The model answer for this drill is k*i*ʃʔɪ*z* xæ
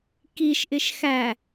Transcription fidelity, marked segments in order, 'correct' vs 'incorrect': correct, incorrect

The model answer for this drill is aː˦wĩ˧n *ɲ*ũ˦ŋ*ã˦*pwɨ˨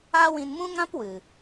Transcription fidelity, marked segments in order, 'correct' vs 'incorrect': incorrect, correct

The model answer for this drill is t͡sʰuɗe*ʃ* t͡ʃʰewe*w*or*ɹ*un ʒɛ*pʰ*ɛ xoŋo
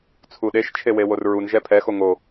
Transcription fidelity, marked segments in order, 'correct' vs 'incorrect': correct, correct, correct, correct

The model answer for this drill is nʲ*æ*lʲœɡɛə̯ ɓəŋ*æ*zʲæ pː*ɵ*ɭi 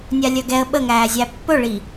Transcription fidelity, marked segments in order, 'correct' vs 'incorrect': incorrect, incorrect, correct

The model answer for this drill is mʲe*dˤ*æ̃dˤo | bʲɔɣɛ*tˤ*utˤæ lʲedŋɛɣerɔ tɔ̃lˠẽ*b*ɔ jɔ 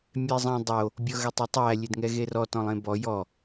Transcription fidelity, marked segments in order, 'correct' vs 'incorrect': incorrect, correct, correct

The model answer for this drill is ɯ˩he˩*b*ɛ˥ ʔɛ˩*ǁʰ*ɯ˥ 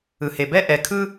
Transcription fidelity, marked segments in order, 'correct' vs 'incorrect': correct, incorrect

